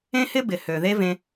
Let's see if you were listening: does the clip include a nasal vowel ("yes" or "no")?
yes